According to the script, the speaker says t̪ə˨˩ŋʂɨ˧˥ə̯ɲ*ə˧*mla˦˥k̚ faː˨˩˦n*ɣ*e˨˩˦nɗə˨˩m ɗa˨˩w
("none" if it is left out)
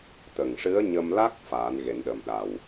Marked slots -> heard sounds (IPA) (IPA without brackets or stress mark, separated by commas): ə˧, ɣ